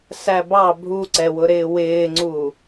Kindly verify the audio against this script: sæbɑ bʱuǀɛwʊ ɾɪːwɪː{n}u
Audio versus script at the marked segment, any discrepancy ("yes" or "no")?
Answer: yes